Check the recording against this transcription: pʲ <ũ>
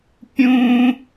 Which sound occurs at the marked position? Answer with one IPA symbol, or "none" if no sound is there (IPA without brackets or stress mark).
ũ